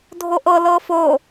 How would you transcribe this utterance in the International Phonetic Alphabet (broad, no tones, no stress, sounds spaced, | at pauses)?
dʱ o ʔ ɤ l ɤ f o